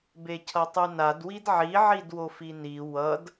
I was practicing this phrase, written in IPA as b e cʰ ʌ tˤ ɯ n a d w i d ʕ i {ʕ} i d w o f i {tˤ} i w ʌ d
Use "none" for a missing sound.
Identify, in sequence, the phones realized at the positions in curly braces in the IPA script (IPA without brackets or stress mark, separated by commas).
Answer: ʕ, n